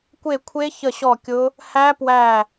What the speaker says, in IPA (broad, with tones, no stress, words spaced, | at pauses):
kʷe˦˨kʷʰe˦˥ çə˦˨ɕɔ˦˨kʲʊ˦˥ | hæ˦˥pwæ˦˨